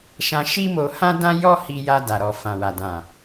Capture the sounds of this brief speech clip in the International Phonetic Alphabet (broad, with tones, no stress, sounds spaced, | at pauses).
ʃ ã˧ ʃ i˦ m o˧ h ã˦ d ã˦ j ɔ˦ h i˧ j a˧ d a˨ ɾ ɔ˨ f ã˨ w a˨ d ã˨